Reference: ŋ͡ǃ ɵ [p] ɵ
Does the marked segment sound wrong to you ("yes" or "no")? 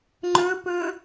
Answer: no